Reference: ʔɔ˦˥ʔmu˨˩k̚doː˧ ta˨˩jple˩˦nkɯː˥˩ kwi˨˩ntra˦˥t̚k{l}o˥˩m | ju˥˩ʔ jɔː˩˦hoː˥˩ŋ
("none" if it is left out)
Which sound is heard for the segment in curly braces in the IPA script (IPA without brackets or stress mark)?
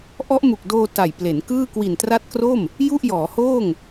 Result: r